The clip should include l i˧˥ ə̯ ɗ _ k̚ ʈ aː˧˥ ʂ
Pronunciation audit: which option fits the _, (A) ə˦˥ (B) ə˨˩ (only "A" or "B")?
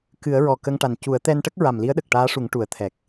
B